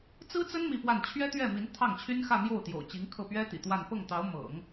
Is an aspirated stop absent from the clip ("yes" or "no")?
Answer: no